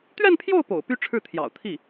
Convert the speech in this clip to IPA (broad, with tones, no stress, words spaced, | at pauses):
t̪ɥɛ˥˧npʰjo˥˩ʊ̯ po̰˨˩ʊ̯py˥ʈ͡ʂʰɻ̩˥˩ t̪ʰjɑ̰˨˩ʊ̯t̪ʰi˥˩